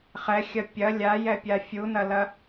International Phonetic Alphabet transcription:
χ ɛ xʲ ɐ pʲ ɐ lʲ a j ɛ pʲ a fʲ u n ɐ l ɐ

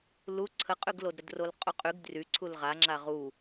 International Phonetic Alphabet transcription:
l u ǀʰ ə qʼ y ɡ l o d ɾ ə d r o l qʼ u qʼ y ɡ d r y ǀʰ u l ʁ a ŋ͡ǁ a ʁ u

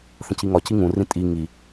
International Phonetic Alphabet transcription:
θ ə̃ c i ŋ ɒ c i ŋ ũ r ĩ tʼ i ŋ i

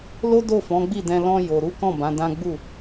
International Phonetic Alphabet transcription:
l o˦ d o˦˨ f ɔ̃˨˦ ɡ͡b i˦˨ d ɛ̃˧ l ɔ̃˧ j o˨ ɾ u˨˦ k ɔ̃˦˨ b ã˨˦ d ã˦ ɡ͡b u˦˨

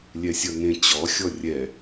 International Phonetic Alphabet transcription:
lʲ ɛ sʲ ʌ ŋ ẽ t͡ɕ ɔ xʲ ɔ rʲ ɛ

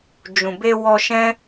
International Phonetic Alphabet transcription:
d͡ʒ ũ˨ b e˧ w ɔ˧ ʃ ɛ̃˦

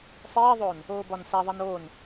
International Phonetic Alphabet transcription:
sˤ iː ðˤ oː n | oː b ɒ n s æ ðˤ æ n oː n

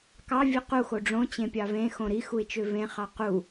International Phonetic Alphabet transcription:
k ɑ vʲ ɨ q u x o ɖ͡ʐ õ t͡ɕ ẽ pʲ ɑ v ẽ x õ ɾ i x u ɪ̯ t͡ʃ ø v ẽ χ ɑ q u

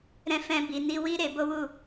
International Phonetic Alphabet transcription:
ɾ ɛ̃˦ f ɛ̃˦ b i˧ n i˦ w i˦ ɾ e˧ b o˦ w u˦˨

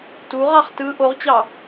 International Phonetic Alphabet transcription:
t u ʁ ɑ χ t ɯ ʔ o ʁ t͡ɕ ɑ

